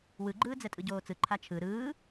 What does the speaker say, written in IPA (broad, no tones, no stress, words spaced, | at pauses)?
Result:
wɯɡ͡ǃɯː d͡zɛtʼɯɟoːt͡sɯ ǃʰat͡ʃʰɯ ɾɯː